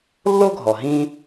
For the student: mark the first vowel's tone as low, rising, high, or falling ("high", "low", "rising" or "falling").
high